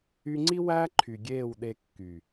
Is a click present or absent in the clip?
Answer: present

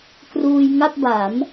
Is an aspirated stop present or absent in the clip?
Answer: absent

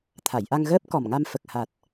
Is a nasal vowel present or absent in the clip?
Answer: absent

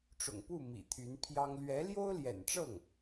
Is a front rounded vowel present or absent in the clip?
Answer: present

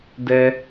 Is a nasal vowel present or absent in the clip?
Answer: absent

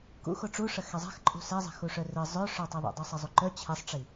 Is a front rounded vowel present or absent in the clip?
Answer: present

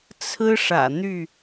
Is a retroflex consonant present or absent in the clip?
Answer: present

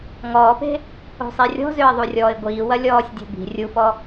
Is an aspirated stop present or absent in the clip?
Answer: absent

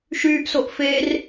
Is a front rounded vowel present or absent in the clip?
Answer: present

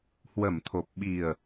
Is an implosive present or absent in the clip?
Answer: present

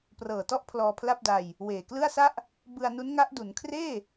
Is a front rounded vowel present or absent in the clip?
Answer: absent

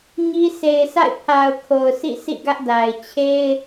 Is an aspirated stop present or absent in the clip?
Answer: present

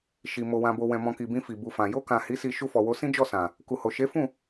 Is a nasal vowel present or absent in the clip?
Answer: present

